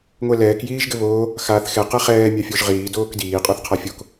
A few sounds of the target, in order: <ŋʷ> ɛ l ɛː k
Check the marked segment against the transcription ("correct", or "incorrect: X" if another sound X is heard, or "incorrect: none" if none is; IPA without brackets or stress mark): correct